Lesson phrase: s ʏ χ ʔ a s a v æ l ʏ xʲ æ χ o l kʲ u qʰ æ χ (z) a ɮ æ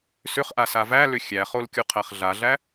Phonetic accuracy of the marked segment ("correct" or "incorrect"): incorrect